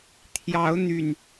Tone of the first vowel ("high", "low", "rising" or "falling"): rising